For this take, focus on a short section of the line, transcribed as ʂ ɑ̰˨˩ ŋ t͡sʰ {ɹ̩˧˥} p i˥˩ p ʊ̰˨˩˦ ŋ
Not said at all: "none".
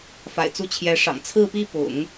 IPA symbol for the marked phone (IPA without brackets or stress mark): ɹ̩˥˧